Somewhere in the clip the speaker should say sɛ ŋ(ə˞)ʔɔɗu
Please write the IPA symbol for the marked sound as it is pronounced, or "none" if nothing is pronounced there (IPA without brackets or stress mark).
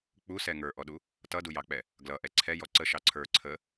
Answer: ə˞